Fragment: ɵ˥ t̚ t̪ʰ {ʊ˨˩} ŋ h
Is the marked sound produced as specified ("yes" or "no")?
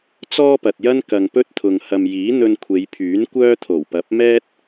no